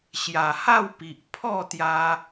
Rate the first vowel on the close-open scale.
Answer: open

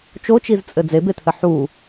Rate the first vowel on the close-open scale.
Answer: mid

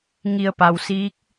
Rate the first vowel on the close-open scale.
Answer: close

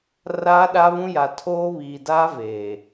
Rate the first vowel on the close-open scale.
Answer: open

